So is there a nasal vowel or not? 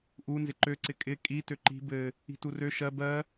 no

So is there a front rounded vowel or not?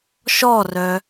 yes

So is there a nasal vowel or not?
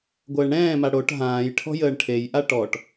yes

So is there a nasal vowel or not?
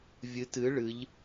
no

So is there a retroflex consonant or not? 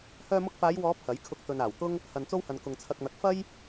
no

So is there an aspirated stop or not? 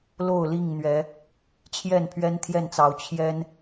yes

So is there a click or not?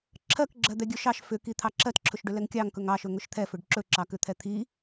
yes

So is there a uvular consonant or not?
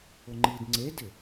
no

